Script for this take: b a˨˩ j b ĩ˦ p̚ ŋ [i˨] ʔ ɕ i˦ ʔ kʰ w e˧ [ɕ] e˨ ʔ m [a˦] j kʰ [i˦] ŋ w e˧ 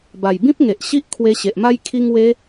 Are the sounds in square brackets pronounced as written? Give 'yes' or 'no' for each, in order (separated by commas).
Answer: no, yes, yes, no